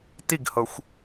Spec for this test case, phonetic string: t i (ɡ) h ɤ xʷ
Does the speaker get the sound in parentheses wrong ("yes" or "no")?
no